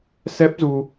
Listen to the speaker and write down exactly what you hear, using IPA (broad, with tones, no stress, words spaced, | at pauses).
sɛ˦˥p̚zu˧